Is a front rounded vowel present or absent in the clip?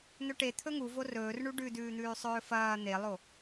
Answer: absent